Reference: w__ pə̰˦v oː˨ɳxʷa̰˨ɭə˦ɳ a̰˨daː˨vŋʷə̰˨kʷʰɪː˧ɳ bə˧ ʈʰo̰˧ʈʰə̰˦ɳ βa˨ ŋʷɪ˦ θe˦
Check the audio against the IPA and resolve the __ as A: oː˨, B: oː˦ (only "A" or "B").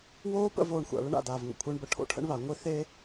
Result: B